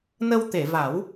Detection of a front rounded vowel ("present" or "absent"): absent